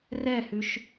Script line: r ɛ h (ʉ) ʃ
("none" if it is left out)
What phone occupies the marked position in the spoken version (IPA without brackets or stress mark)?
ʉ